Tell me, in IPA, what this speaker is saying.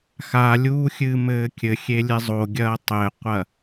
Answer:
x a lʲ uː xʲ ɨː m ɘː kʲ ɘ xʲ e lʲ e zˤ o ɡʲ ɐː tˤ ɘ qʷ ɐ

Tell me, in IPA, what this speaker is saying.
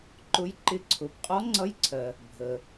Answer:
ǃ ʊ˧˥ j ǃ ɪ˧ ǀʰ ʊ˩˧ b qʼ ɔ˧˥ ŋ͡ǀ ʌ˧˥ j ǀʰ ɜ˩ | bʱ ə˩

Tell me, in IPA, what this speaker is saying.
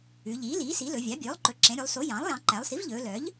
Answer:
ʉ˩˧ ʎ iː˩˥ l iː˩˥ s i˩˥ l ɵ˩˧ vʲ ɑ˩˥ bʲ ɵː˩˥ lˠ ǃ ɵ˩˧ ǁ ẽ˩˧ ɾʲ ʉ˩˧ lˠ s o˩˥ j ɑ̃˩˥ lˠ j ɑ̃˩˧ ǃ æ˩˧ lˠ s i˩˥ v ʎ ɵː˩˧ l œ˩˥ ʎ

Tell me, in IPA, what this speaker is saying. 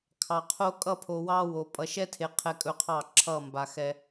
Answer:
kʰ ɑ˨ qʰ o˦ kʼ ʌ˦˨ pʰ o˨ w ɑ˦ w o˨ pʼ ʌ˨ ʃ ɛ˦ tʰ e˨ qʰ ɛ˦ kʼ ɵ˦ qʰ ɑ˦˨ ǁʰ ʌ˦˨ m b a˨ x ɛ˨

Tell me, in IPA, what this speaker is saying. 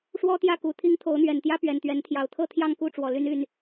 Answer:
ʂ w ɔ˦ t̪ j ä˥˨ k u˨˩ t̪ʰ i˦ ŋ t̪ʰ o˨˦ ʊ̯ n̪ ɥ ɛ˨˩ n t̪ j ä˦ p ɥ ɛ˨˩ n t̪ ɥ ɛ˨˦ n t̪ʰ j ɑ˨˦ ʊ̯ t̪ʰ ɤ˥˨ t̪ʰ j ɑ˥˨ ŋ k u˥˨ ʈ͡ʂ w ɔ˨˩ l y˦ n y˥˨ n

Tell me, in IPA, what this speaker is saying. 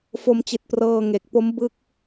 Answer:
f o˧ m t͡ɕ i˨˩ t̚ p r ɤː˧ ŋ e˨˩ k̚ p o˦˥ m b ɯ˦˥ k̚

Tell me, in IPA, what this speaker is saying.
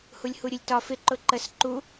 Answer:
h u lʲ h u ɾʲ ʊ lʲ t ɒ f ɪ ǃ ʊ ǃ ə s ǃ u

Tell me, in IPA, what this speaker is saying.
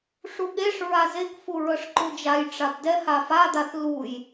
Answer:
ʂ u ɠ e ʂ ɹ a z e k f u ɹ ɤ ʂ ǃ u d͡ʒ a j ʈ͡ʂ a b d ɛ h a f a d̪ a θ l u j

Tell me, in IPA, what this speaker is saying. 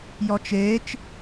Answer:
j ɔ t͡ʃ e t͡ʃ

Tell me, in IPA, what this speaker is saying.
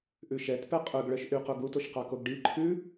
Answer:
ʔ ʉ ʃ ɛ t p ɛ qʼ ɵ ɡ ɭ œ ʃ ʔ y q o ɡ u t o ʃ q ɑ k o ɡ ɖ i ǃʰ ʉ

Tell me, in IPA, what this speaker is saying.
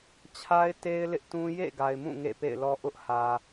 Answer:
t͡ɕʰ a˦ ɪ̯ t e˦ ɪ̯ l ɪ˦ ʔ t ũ˦ j ḛ˦˨ ɡ a˨ ɪ̯ m ũ˦˨ ŋ ḛ˦˨ p ḛ˦˨ ɪ̯ l ɔ˦ ʔ ʊ˦ ʔ h ä˨

